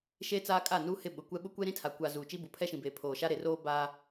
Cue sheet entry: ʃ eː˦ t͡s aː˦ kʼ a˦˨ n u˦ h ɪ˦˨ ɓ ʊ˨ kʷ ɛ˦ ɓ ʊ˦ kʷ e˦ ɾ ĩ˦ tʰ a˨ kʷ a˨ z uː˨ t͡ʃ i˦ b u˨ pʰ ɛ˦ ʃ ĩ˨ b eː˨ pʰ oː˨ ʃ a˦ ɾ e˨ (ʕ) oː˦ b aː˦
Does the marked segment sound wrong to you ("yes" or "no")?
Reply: yes